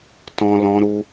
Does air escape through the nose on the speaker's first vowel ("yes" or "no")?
yes